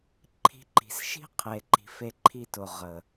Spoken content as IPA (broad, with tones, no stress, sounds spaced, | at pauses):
ǃʰ i̤˧ ǃ i̤˨ s ʃ i̤˦ qʰ e˨ ǃ i̤˨ f e˧ ǃʰ i˧ t ʊ˨ ʁ ə˨